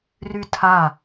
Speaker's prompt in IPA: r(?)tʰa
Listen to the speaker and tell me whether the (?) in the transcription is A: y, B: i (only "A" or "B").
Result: A